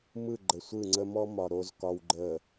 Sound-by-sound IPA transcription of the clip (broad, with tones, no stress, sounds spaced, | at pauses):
m ɯ˦˨ ɡ͡ǃ ə˨ sʷ ɯ˦˨ ŋ͡ǀ ə˦ m ɔ˦ m ɒ˨ ɾ o˨ z k ɒ˨ w ɡ͡ǃ ə˨